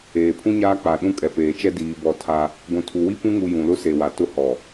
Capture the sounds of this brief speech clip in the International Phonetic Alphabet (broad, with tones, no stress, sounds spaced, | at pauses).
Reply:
eː˨ pʰ ũ˦ ɲ aː˦ k͡p a˨ ɗ ũ˦ kʼ ɛ˨ p eː˨ t͡ʃ ɛ˦ d iː˨ b ɔ˨ tʰ a˦ | ɡʷ ũ˨ tʰ u˨ w i˦ p ũ˦ ŋ u˨ j ũ˨ l ʊ˦ s e˨ w a˨ t ʊ˦ h ɔ˨